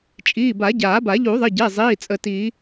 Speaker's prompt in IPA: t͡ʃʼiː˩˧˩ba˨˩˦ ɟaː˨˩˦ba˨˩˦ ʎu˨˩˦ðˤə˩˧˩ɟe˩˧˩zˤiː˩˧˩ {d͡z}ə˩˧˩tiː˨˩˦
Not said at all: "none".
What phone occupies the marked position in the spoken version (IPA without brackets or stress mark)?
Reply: t͡sʼ